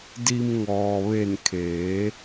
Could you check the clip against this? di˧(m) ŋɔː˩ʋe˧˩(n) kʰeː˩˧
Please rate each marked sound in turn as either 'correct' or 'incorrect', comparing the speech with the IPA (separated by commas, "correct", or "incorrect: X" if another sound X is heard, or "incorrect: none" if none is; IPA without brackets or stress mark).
correct, correct